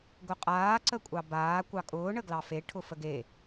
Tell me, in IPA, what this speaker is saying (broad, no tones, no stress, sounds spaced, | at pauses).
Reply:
ɡ ʊ qʼ aː ǀ ə kʷʼ ɑ b aː kʷ ɑ kʼ ʊː ɳ ə ɡ l ɑ f e ʈʰ ʊ f ə ɡ e